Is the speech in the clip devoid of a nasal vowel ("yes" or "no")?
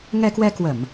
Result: yes